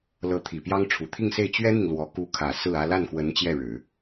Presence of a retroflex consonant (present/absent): present